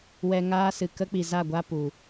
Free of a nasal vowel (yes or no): yes